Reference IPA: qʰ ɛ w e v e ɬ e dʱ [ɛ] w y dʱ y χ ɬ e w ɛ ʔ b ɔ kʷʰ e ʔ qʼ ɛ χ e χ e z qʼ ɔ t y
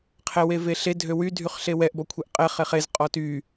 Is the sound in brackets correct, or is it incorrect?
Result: incorrect